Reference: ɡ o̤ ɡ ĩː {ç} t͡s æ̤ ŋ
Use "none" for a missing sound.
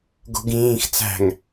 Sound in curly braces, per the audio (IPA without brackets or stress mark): x